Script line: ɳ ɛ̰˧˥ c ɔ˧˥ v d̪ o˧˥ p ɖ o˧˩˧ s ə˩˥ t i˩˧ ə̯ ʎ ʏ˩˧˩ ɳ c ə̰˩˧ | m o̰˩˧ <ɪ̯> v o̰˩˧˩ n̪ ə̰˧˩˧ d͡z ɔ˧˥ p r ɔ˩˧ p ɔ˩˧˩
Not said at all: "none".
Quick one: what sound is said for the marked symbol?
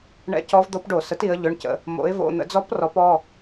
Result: ɪ̯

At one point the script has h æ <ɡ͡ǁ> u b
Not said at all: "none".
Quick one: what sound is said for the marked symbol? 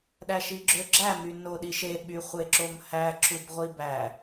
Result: ǁ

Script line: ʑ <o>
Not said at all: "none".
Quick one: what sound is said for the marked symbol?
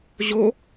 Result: o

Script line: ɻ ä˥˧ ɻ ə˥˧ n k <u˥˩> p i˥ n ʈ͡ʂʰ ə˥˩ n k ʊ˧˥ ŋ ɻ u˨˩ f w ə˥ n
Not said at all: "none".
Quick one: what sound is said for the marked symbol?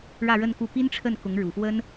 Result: u˥˩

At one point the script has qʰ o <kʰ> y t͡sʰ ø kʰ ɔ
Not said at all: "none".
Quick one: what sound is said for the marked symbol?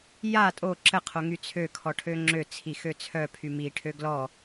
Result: ŋ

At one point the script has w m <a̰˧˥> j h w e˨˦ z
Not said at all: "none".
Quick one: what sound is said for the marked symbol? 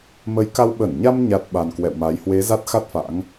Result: a˨˦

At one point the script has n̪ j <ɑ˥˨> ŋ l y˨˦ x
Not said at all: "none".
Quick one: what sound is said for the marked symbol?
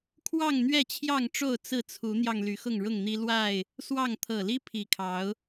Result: ɑ˧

